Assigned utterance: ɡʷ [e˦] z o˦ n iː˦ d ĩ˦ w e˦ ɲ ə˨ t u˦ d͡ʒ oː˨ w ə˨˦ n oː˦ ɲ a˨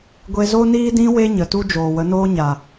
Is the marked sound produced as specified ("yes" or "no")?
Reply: yes